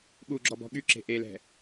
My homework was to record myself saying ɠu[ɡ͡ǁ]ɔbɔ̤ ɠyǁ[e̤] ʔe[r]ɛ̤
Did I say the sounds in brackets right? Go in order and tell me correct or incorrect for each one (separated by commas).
correct, correct, incorrect